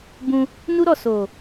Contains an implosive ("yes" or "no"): no